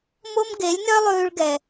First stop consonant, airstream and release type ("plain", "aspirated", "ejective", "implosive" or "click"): plain